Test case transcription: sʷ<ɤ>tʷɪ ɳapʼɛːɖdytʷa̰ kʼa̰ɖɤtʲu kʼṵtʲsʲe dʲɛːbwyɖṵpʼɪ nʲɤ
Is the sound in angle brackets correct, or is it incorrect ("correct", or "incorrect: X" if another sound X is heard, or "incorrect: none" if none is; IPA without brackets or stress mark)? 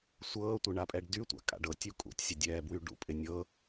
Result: incorrect: ɤː